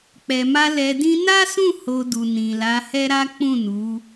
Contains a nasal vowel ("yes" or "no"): yes